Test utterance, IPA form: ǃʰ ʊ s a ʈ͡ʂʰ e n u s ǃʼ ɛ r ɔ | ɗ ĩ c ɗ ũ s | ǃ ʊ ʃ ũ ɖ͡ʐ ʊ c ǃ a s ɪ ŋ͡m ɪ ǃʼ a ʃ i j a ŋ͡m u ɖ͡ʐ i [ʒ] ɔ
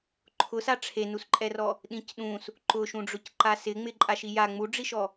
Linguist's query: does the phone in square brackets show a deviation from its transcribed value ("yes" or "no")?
yes